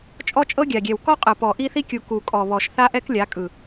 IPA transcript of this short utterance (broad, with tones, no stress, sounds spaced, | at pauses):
t͡ʃʼ ɔ˦ t͡ʃʼ ɤ˦ ɡʲ a˨ ɡʲ ɛ˨ w k ɔ˦ qʼ ɯ˨ p ɔ˨ ʔ i˦ θ i˦ kʲ u˨ k u˨ kʼ ɔ˨ β ɔ˨ ʃ θ a˦ ʔ ɛ˦ k lʲ a˨˦ kʼ ɯ˨